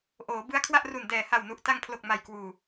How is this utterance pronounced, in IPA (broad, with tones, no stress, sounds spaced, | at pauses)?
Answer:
ʔ oː˩˦ b ɯ˦˥ a̯ kʰ w a˥˩ ʔ r u˨˩ n d ɛː˨˩ h a˨˩ w n u˨˩ ʔ t a˧ ŋ pʰ l o˨˩ k̚ m a˨˩ j k w uː˨˩